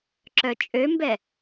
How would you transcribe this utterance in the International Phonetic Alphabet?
ǁ œ t͡ʃʼ ø m b ɛ

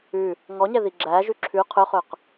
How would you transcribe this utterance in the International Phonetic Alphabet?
ʉ | ŋ ɔ ɲ ɛ ð i ɡ͡ǁ æ ʒ ʉ ǁʰ ʉ qʰ ɵ χ ɵ q

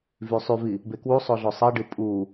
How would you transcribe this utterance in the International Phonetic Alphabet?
v y sˤ y v i | b e k w u sˤ o ɮ o sˤ e ɖ ɯ pʼ u

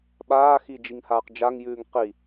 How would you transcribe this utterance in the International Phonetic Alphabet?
ɓ aː x i d͡ʒ i ŋ h aː q d͡ʒ a ŋ j ʉː ŋ q i

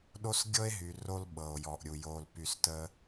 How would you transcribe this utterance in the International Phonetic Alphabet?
ɗ o˦ s ɡʲ ɤ˦ e̯ ɦ y˨ r o˧ l ɓ ɤ˨ o̯ j ɔ˨ ʔ ɾʲ u˨ j o˨ l p y˨ s t ə˧

